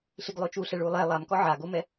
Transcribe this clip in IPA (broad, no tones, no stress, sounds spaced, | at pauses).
ɬ i ɡ lˠ o t͡ʃ u ɬ ɛ ɭ u lˠ ɛ lˠ a m k ɔ ʕ a ɡ o m ɛ